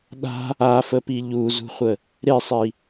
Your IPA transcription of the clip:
ɗ a̤ | a f ə p i ʎ u z ṳ χʷ ə | ɾ e sˤ i

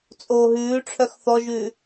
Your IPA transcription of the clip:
t͡sʼ oː ɦ ʉː ʈ͡ʂʰ œ x θ ɔ ʒ ʉː

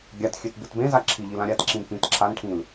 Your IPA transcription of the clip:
ɡʲ a t xʲ ø t b ɨ t b ẽ z a ǁʰ i ʎ i l ã ɾʲ a t ǁ ĩ n p ĩ t ǁʰ a n ʈʰ ĩ l

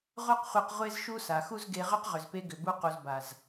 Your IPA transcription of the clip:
ʁʷ a˦ q χʷ e˧ q ʁʷ e˦ z ʃ u˦ s a˨ x u˦ z ɡ e˧ ʁ ʏ˦ q ʁ ʏ˨ z p e˧ ɡ ʏ˨ b u˧ q u˨ z b a˨ z

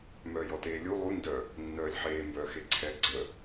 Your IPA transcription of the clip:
m œː j ɔ t eː lʲ u lˠ u n d œ | nː œː lʲ ħ eː m b œː x e ǀʰ ɛ ɡ͡ǀ ə

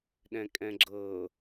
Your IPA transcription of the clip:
ɗ ɛ̃ kʼ ɛ̃ ɡ͡ǁ ɤ

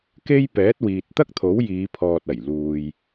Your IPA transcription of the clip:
k e˥ j p ɛː˨˥ t̚ w iː˨ t̚ t̪ ɐ˥ k̚ t̪ʰ o˨˥ w j iː˨˧ pʰ ɔː˨ t̚ ɐ˨˩ j l uː˨ j

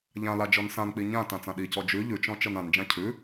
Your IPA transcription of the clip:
ʎ ã l a d͡ʒ ɔ n s ã n k͡p i ɲ ã t ã t͡s ã ɗ i c ɔ d͡ʒ ʉ ʎ ʉ t͡ʃ ɔ̃ t͡ʃ ɤ n ã n d͡ʒ ã cʰ ʉ

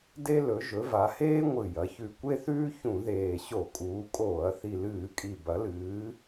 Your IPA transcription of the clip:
d e˦ l ɵ˩˧ ʒ ɵ˩˧ v a˩˧ h eː˦ ŋʷ ɨ˨˩ j ɐ˩˧ ç ʉ˨˩ kʷ e˦ θ ʉː˦ ç ũ˧˩˧ ð eː˨˩ ɕ o˧˩˧ kʼ uː˩˧ kʼ oː˧˩˧ ɐ̯ θ i˨˩ l ɨː˧˩˧ kʼ i˨˩ b ɐ˩˧ l ɨː˩˧

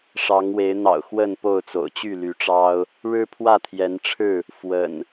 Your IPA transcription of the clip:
ʂ ɑ˨˦ ŋ w e˨˦ ɪ̯ n̪ ɑ̰˨˩ ʊ̯ x w ə˥˨ n p o˥˨ ʊ̯ t͡s o̰˨˩ ʊ̯ t͡ɕ y˥˨ l y˨˦ ʈ͡ʂ ɑ˦ ʊ̯ | ɻ ɻ̩˦ pʰ w ä˥˨ t̪ʰ j ɛ˨˦ n ʈ͡ʂʰ ɻ̩˥˨ | f w ə̰˨˩ n

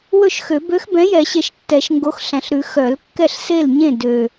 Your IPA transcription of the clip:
w ɵ˥˩ ʃ x ø˨˩˦ b ø˨˥ x b ɛ̃˨˥ j ɛ˨˩˦ ɕ e˨˩ ʃ tː ɛ˨˩˦ ʃ ŋ ɡ o˨˥ x ɬ æ̃˨˩ ɬ ɾ ʉ˨˩˦ x œ˨˩˦ l kː ɛ˥˩ ɬ s e˥˩ l ɲ ẽ˥˩ d ø˨˩

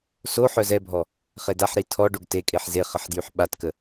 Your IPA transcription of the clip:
s o ħ œ z ɛ bʱ ɔ | χ e d a ħ ɾ i tʰ ɔ ɖ o ɡ t e kʼ e ħ z e χ ə ħ d j y ħ ɓ a t k ə

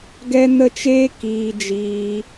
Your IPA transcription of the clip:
ɡ ɛ˦ n ə˦ t͡ʃ eː˦ k iː˧ d͡ʒ iː˧

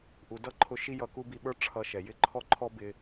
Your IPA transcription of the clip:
ʔ u˩ d ʌ˥ ǃʰ ʊ˧ ʃ i˥ j ʌ˧ k u˥ b i˧ ɓ ə˞˥ ʈ͡ʂʰ ʌ˧ ʃ ɛ˩ j ɪ˥ ǃʰ ɔ˥ ǃʰ ɔ˥ b ɪ˧

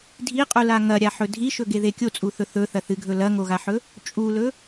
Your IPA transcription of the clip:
dʱ i qʼ u l a ŋ ɐ ɾʲ a ħ ɵ dʱ i ʃ ɵ ɡ e ð e kʲ o t͡sʼ u θ ɵ θ ɵ θ ɐ θ ɨ ɡʱ ɵ l ɐ ŋ o ɣ a ħ ɵ | t͡ʃʼ u l ɵ

